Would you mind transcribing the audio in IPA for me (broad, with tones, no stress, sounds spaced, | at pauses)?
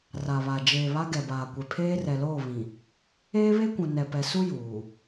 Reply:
r a˨ β a˨ d͡ʒ eː˨ β a˦ ɡ ɛ˨ b aː˨ kʷ e˨ pʰ eː˦ r ɛ˨ l oː˦˨ β ĩ˨ | eː˦ β e˦ kʷ ũ˨ n ɛ˨ p ɛ˨ s u˦ j uː˨